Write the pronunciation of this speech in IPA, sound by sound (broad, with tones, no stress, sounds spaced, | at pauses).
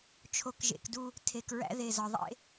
t͡ʃʰ o˨ k ʒ ḛ˨ k d u˦ | tʰ e˨ k ɹ æ̰˦ ð e˨ z ɒ˨ ðˤ ḛ˦